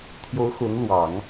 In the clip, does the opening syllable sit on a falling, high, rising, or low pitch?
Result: rising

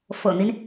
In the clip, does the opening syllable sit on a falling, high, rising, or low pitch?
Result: low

